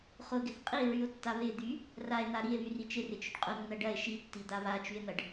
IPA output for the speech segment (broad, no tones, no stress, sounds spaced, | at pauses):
χ ʊ ɡ ɪ θ qʼ i ɹ y o̯ tː a β ɪ d̪ y | r a e̯ n̪ a ɾ i e̯ β y r i t͡ʃ ɪ r ɪ t͡ʃ ʊ ɖ qʼ ʊ nː ɐ ɖ ɐ e̯ ʃ i tː i d̪ a β a t͡ʃ y e̯ n̪ ɐ ɖ